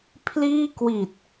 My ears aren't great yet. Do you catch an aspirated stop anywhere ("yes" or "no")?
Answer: yes